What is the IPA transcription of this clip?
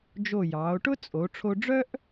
d͡ʒo˧˩jɑː˩˧o̯ʈʊ˥t͡sʼo˩˧ ʈ͡ʂʰo˧ɖ͡ʐœ˥ʔ

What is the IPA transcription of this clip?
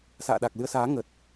sa̰ː˧˨ɗa˨˩k̚lɨ˧ə̯saː˨˦ ŋə˨˩t̚

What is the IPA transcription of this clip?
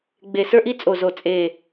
ɡ͡be˨˩sə˞˧ʔi˧ t͡sʼo˨˩zo˨˩ t͡sʼe˨˩

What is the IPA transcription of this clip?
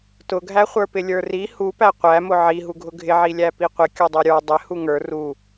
tʊɡʱæχʷə˞pɪ lʲə˞ri hupæ qʷæmʊ ʕiɦuɡʱʊ ɡʱɪʕilʲæ piqʷɪ kʲudˤuɾʲə˞ dˤɪ huŋə˞ ru

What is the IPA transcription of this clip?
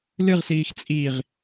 lɨʁsiːx t͡sʼiʁ

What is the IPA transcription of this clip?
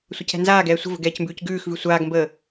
sʷʌcɛ̤nzaːɡɛː sʷə̤və̤ ɡɛːcmbʉːcɡʉːxvʉ sʷaːɡmbəː

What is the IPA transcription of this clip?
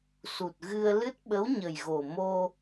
su˨˩t̚ɣɨ˧ə̯ lɨ˦˥t̚ ɓə˧˥wɲə˨˩jɣo˨˩ mo˧

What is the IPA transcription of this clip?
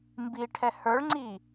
mbiʈʰɛ hə˞ɭŋ͡ǀi

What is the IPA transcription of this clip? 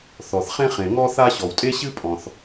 θɔ˩θχẽ˥χẽ˩ ŋɔ˥θa˥ ɕɔ˩wtʼe˥ ɕɨ˥pʼɔ̃˩θ

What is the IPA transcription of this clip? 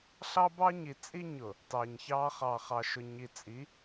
ɬɑ˦bɑ˦ ɲi˨t͡sʼi˦ɲʊ˨ | tɑ˨ɲçɑ˦ χɑ˨χɑ˨ʃʊ˨ ɲi˨t͡sʼi˨˦

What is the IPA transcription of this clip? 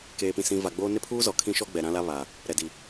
keː˨pĩ˨ sĩ˨ va˨ɡ͡boː˦ nɪ˦pʰuː˦ zɔ˨ kʰĩ˦ʃɔ˦ɡ͡bɛ˨ ɾã˦ la˦βaː˨ | ɾɛ˨di˨

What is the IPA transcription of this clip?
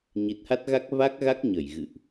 ɲi˨˩t̚ha˦˥t̚ɣa˦˥k̚ va˦˥k̚ɣa˦˥k̚ɲə˧˩j ɣɨ̰˧˨ʔ

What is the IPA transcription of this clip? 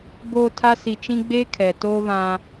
boː˨ tʰa˦ si˨t͡ʃĩ˦ ɡ͡beː˦ kʰɛ˨ toː˦βã˦

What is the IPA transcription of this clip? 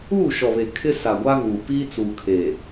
uː˦˨ʃɔ˨βe˨ kʰɪ˦ sa˨ɡʷa˦ɣuː˨ piː˦t͡suː˨kʰeː˨

